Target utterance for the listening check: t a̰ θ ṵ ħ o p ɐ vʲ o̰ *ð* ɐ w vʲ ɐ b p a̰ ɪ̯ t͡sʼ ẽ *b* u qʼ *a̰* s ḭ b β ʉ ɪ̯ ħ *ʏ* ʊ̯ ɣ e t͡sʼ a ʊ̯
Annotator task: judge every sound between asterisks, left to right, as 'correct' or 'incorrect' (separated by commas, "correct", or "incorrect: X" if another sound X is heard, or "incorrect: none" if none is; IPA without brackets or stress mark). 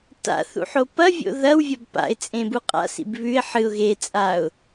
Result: correct, correct, correct, incorrect: ɨ